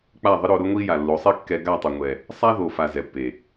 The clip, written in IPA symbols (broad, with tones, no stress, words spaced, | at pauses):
k͡pa˦˨ðˤɪ˦ɾo˧ɾʊ˦ ŋʷi˦ ja˨lːo˨˦sˤi˦ kːɛ˧ ɡa˦˨tˤʊ˨ŋʷɛ˨ | sˤa˦ðo˨ fa˨ zɛ˨pːe˨